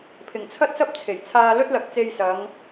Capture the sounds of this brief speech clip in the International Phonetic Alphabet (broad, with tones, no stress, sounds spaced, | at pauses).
pʰ ɪ˨˩ ŋ t͡sʰ ɐ˥ t̚ s ɐ˥ p̚ t͡sʰ e˨˩ j t͡sʰ aː˧ l ɵ˥ t̚ l ɐ˨ k̚ t͡s e˧ j s ɐ˨˧ ŋ